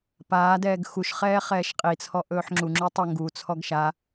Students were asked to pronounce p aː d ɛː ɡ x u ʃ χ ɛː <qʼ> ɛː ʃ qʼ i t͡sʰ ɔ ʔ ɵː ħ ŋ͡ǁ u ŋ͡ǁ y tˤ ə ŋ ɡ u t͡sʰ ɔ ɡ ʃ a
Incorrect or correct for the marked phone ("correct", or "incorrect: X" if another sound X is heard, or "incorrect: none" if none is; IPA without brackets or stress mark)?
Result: incorrect: χ